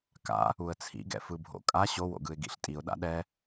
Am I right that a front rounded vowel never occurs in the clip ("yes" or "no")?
yes